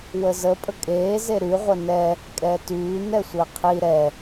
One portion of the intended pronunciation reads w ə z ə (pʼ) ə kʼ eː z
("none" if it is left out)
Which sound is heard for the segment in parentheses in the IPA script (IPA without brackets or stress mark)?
pʼ